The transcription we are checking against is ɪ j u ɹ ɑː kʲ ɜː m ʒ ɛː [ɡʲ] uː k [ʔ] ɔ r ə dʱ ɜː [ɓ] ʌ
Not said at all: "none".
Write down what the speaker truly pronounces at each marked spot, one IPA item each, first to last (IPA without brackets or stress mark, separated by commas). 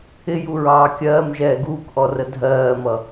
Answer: ɡ, ʔ, m